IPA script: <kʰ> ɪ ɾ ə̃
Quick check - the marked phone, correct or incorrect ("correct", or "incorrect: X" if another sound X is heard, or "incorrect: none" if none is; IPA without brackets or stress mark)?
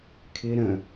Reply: correct